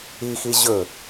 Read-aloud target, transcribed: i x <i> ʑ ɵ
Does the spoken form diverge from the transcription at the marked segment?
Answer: no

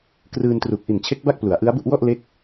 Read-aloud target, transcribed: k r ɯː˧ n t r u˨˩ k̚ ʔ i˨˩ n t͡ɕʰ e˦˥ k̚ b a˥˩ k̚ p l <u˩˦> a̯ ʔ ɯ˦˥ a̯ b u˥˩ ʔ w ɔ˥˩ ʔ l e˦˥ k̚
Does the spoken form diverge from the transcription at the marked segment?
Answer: no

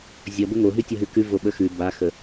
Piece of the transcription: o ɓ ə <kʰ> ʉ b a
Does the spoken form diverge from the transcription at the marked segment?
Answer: yes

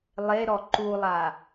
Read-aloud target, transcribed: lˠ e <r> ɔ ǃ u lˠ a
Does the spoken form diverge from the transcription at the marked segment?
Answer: yes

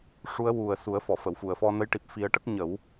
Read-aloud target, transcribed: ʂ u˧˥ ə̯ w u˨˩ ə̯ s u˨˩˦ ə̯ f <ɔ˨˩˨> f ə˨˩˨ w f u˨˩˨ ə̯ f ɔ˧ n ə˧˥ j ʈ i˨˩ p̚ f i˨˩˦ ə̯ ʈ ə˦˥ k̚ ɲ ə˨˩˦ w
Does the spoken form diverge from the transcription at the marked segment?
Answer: no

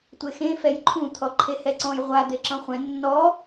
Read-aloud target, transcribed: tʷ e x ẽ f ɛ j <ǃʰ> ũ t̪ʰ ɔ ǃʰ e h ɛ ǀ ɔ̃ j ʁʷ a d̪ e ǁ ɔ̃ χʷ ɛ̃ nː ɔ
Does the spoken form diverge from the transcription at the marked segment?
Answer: no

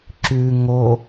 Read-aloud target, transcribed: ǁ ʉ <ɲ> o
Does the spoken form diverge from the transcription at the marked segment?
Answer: yes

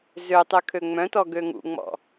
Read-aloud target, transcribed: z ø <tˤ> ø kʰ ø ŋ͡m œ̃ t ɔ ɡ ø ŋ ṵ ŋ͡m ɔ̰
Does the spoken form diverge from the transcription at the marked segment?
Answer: no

